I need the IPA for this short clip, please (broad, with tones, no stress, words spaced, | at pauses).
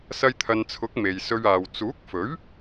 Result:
sɐ˧jt̪ʰɐ˨nt͡sʰʊ˨˥k̚ me˨jsɵ˧ɥaː˨w t͡suː˨˥k̚fɵ˨˥ɥ